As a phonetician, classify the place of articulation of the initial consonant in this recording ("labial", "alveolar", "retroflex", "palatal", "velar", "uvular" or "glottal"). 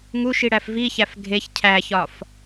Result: velar